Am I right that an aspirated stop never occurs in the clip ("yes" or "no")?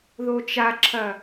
no